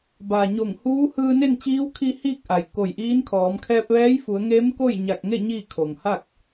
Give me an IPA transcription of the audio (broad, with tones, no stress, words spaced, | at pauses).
ba˩ɲo˧˩ŋhuː˧˥ hɯː˧ne˥˨nt͡ɕiː˧˥wkʰi˧ hiː˥˨k̚ʔa˩j ko˧˩jʔiː˧˥nkʰɔː˩˧m kʰɛː˧p̚ʋɛː˧˥jfu˩˧ə̯ŋeː˧˥m ko˥˨jɲa˧˩k̚ŋe˥˨ ɲiː˥˨kʰo˩ŋha˥˨k̚